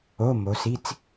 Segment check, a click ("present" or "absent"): absent